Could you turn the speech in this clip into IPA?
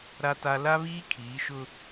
ɾ a˦ t a˦ l a˦ β iː˦ kʰ iː˨˦ ʃ ʊ˦

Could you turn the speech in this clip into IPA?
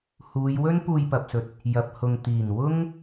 h uː˨˧ j w ɵ˥ n p uː˧ j p ɐ˨ p̚ s ɵ˨˥ t̚ | j ɐ˨ p̚ h ʊ˨ ŋ t̪ iː˨˩ n w ʊ˥ ŋ

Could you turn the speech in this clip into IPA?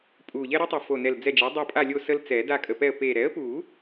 pʼ u˨˩ ʎ ɛ˦ ɾ œ˦ tˤ u˨˩ f o˨˩ n ɛ˨˩ l d͡z ɛ˦˨ d͡ʒ ɛ˩˥ dˤ a˦˨ pʼ a˦˨ lʲ o˦˨ s ə˦ l t͡s ɛ˨˩˦ d a˦˨ kʼ ə˨˩ p ɛ˦˨ ə̯ p e˨˩ ɾ ɛ˩˥ ə̯ p u˨˩˦

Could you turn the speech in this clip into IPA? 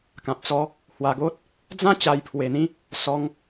k ã˨ p̚ t͡s ɔ˧ | h w a˧ ɡ o˦ t̚ | d͡z ã˦ t͡ɕ a˧ j pʰ w e˧ n̪ ĩ˦ | s ɔ˧ ŋ

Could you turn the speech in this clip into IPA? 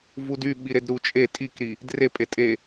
v u d y ɓ i ɾ e d ɾ u t͡ʃʼ e tʼ i k ɾ i | d r e pʼ e tʼ e

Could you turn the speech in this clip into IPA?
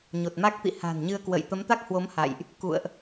ɲ o˨˩ t̚ m a˦˥ k̚ t̪ ḭ˧˨ h a̤˨˩ n ɲ ɨ˧ ə̯ k w ə̰˧˨ j t̪ ə˨˦ m t̪ a˦˥ k̚ h w o˨˦ m h a̰˧˨ j ʔ | k ṵ˧˨ ə̯ ʔ

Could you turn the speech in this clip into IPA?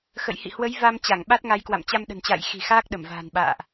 x ə̰˧˨ j h ḭ˧˨ h w ə˨˦ j v a˧ m t͡ɕ a˧˩ ŋ ɓ a˦˥ t̚ ŋ a˨˦ j k w a̰˧˨ m t͡ɕ a˧ m ɗ ə̤˨˩ n t͡ɕ a̰ː˧˨ j x i̤˨˩ x aː˦˥ k̚ ɗ ə˧˩ m v a̤ː˨˩ n ɓ a̰ː˧˨ ʔ

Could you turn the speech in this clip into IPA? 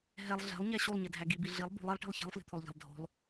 ɦ ɛ lˠ ɮ ɛ̤ lˠ ɲ æ ɕ u lˠ ɲ ɛ dʱ æ ɡ i b i ɮ i lˠ b ṳ lˠ i lˠ ʈ i̤ lˠ ç ɛ̤ lˠ f l i̤ t̪ʰ o lˠ ʎ æ̤ lˠ dʱ o̤ lˠ

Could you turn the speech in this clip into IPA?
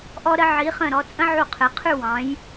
ʔ ɔ˧ ɾ ə˧ ʕ i˩˧ χ ə̃˧˩ ɾ ɔ˩˧ t͡sʼ ə̃˥ ʕ u˧˩ qʰ ɘ˩˧ qʰ ʉ˥˧ w ɑ̃˩˧ j

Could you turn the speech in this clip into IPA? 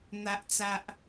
n̪ a˨ ʔ t͡s a˨ ʔ

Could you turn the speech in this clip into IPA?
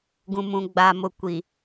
ɡ ũ˨ m ũ˨ ɡ͡b aː˨ m ʊ˨ kʷ i˨

